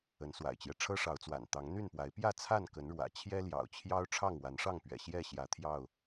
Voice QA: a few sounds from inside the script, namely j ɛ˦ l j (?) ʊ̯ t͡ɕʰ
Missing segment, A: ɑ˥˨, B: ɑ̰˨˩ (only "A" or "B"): B